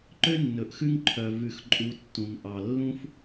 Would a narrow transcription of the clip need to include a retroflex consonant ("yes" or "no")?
no